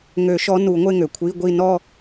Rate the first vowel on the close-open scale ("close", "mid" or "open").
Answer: mid